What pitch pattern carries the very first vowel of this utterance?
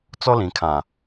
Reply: high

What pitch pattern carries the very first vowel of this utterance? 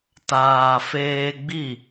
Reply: low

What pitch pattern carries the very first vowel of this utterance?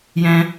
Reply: high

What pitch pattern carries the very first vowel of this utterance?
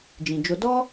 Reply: low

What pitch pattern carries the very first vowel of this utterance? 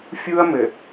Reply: high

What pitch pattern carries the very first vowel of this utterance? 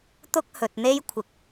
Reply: high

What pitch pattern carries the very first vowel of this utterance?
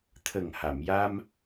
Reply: low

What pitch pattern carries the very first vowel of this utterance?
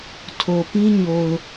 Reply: low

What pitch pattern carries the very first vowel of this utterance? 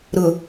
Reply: low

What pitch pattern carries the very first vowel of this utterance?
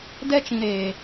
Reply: high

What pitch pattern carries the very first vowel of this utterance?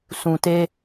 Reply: low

